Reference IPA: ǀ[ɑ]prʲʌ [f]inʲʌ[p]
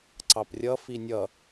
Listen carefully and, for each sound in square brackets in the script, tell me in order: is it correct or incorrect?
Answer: correct, correct, incorrect: none

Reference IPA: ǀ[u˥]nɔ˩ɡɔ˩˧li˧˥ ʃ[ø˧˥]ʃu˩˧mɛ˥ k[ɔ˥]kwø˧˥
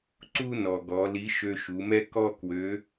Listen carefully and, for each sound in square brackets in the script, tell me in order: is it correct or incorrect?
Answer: correct, incorrect: ø˧, correct

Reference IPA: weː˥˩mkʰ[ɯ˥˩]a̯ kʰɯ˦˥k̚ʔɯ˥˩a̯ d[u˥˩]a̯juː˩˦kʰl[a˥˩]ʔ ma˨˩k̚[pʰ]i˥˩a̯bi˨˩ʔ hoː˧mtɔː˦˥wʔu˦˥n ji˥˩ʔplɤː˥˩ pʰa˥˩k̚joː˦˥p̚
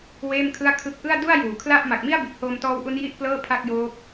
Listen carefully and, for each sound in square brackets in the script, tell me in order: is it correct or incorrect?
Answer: correct, correct, correct, incorrect: m

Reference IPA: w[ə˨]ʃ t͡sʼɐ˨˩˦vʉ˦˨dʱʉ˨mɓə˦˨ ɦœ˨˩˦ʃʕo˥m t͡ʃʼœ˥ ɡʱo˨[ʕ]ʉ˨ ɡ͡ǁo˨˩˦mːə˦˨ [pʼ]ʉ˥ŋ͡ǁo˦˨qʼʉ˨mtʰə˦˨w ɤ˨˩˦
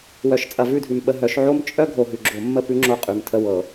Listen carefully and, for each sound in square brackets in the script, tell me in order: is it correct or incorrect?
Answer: incorrect: œ˨, incorrect: ɦ, incorrect: p

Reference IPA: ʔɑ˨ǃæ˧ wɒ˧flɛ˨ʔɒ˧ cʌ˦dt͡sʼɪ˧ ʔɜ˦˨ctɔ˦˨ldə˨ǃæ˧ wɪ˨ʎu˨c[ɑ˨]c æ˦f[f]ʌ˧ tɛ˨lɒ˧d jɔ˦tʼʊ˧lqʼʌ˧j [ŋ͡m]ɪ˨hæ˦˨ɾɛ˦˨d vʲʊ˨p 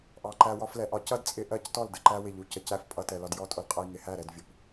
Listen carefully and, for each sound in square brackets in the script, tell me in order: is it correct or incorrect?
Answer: incorrect: ə˨, incorrect: pʼ, incorrect: ŋ

